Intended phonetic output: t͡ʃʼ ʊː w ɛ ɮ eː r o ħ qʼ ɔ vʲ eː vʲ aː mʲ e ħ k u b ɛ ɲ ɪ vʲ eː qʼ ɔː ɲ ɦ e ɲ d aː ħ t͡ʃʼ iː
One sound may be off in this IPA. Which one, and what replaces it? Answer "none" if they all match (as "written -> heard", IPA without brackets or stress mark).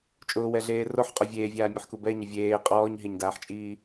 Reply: none